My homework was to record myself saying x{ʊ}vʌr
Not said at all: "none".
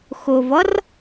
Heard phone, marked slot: ʊ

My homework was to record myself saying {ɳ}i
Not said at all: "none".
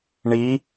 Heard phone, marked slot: ɳ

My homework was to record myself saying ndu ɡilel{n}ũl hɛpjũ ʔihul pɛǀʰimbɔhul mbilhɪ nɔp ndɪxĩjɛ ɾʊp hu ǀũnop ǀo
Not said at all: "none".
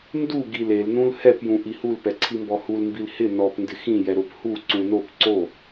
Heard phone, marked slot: n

